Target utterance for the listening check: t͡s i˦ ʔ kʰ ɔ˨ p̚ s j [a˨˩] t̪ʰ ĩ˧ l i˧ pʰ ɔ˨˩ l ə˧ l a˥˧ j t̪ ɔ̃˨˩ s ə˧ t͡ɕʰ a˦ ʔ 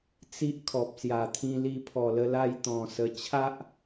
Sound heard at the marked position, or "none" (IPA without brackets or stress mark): a˨˩